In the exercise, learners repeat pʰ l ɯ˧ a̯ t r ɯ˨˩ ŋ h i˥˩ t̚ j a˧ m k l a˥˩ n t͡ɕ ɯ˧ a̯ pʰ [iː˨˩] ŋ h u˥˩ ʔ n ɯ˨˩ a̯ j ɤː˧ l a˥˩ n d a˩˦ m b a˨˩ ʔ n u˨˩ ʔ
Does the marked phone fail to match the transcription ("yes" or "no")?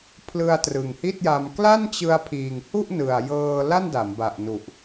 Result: no